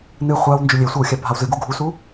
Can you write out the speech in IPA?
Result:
n ɨ χʷ a w n d͡ʒ ʏ lʲ e sʷ e w xʲ a bʱ a w z ɨ ɡ u ɡʱ u s u

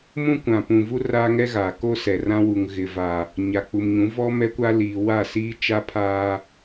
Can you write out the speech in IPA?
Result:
m ũ˦ kʷ ã˨ p ũ˨ v u˦ r aː˦ ŋ ɛ˦ ɣ aː˨ k o˦ s ɛ˨ r ã˦ w u˨ ŋ ɣ ɪ˨ v a˨ | ɲ a˨ k͡p u˨ m ɲ ũ˨˦ v ɔ˦ m ɛ˦ kʷ a˦ l iː˨ w a˦˨ s iː˦ t͡ʃ a˦ pʰ aː˦

